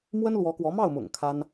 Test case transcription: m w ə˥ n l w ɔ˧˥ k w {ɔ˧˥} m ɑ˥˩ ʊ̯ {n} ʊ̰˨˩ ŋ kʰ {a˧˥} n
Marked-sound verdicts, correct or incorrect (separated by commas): correct, incorrect, incorrect